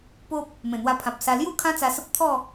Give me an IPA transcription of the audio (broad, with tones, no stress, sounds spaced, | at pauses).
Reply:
p o˦ p̚ | m ẽ˨˩ n̪ w a˧ pʰ ã˨ p̚ s a˧ l j u˥˧ kʰ ã˦ t͡s a˧ s ə˦ p̚ t̪ʰ ɔ˥˧